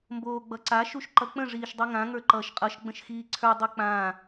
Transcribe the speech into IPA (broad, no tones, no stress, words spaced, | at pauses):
mboːɡ͡bʌǀa ʃuʃǃʌk͡pə̃ ʐiːʃdˤiŋã ŋə˞ǃʌːʃqʼʌʃ ɡ͡bə̃ʃxiːǀʰə˞ dˤik͡pãː